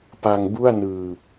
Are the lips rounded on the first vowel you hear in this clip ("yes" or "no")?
no